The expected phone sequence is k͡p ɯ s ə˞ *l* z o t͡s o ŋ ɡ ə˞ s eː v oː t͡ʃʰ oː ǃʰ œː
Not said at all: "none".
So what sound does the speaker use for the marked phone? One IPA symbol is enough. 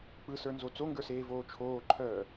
n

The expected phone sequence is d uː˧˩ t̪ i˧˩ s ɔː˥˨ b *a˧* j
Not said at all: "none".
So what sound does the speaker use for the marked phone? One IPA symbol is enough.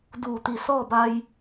a˧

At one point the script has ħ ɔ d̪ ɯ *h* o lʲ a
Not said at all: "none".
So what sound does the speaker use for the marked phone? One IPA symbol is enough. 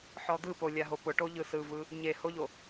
p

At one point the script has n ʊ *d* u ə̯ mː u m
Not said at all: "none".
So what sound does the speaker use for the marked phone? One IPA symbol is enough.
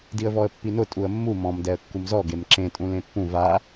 tʼ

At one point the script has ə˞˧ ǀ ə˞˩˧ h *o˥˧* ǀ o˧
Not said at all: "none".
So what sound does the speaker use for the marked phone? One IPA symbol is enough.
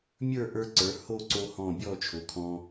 o˥˧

